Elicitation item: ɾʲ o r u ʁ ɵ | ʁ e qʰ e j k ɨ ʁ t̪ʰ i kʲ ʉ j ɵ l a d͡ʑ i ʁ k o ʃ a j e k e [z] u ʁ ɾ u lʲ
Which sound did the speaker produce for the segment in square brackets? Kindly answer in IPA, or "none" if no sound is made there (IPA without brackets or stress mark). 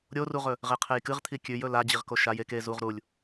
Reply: z